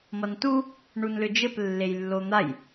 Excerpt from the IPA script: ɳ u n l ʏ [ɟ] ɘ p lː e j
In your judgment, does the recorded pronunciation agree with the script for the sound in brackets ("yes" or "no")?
no